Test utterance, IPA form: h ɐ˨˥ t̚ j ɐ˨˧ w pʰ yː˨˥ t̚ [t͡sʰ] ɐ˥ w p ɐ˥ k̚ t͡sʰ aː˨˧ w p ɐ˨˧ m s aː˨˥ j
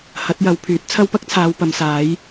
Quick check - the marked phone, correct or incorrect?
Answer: correct